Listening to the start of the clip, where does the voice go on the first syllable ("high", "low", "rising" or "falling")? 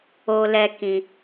high